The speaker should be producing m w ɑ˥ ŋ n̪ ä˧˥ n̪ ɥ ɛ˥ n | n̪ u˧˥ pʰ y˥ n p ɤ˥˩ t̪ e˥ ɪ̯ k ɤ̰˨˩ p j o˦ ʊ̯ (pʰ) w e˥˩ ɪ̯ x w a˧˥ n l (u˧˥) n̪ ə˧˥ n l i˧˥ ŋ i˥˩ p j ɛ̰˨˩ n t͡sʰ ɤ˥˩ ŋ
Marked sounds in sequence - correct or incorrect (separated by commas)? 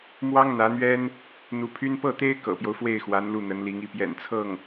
incorrect, incorrect